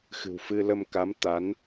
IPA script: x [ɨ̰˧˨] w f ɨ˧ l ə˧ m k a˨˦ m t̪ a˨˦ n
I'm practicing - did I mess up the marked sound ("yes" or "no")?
yes